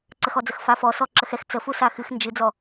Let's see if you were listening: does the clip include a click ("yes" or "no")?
yes